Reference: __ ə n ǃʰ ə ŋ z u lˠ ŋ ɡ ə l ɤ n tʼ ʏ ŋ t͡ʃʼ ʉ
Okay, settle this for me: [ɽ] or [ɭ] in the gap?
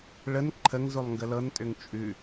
ɭ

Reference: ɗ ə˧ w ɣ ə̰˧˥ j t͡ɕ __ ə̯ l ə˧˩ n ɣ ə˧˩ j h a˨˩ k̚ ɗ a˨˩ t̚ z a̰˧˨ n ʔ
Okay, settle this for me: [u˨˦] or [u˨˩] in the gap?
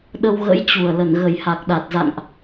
u˨˩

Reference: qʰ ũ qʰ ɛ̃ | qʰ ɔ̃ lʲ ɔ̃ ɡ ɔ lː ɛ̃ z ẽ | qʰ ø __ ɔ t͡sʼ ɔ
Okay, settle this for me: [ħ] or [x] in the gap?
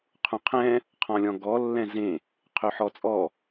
ħ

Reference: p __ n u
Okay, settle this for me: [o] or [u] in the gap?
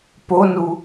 o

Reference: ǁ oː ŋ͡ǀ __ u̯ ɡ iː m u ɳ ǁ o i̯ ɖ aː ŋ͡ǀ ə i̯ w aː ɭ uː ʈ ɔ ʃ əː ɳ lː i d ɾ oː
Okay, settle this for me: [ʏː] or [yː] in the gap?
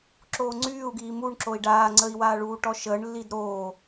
yː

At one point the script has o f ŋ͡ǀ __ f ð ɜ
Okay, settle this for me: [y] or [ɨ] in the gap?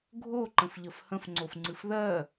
ɨ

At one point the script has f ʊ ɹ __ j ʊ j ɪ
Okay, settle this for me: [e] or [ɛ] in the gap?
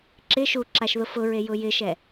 e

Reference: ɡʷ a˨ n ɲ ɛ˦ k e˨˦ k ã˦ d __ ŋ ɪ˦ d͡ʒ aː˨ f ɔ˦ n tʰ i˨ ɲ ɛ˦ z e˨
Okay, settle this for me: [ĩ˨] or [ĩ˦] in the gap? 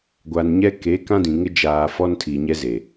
ĩ˨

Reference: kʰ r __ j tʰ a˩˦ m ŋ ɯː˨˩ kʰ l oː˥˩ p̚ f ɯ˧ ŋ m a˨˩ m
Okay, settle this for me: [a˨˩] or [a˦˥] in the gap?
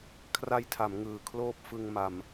a˦˥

